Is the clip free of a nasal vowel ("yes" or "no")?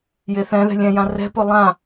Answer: no